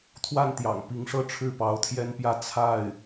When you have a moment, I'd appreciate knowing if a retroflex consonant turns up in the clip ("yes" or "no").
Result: yes